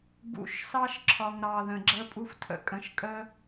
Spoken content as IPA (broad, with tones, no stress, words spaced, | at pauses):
bṵ˨˦ʃsɑ˦ʃǁʰɒ˨ŋɾɑ˨ ðə̃˨ɡ͡ǁə˦pʼu˦ftʰə̰˦ kʼə̃˨ʃkʼə˦